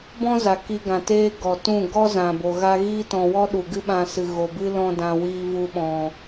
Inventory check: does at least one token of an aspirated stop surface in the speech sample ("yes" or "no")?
no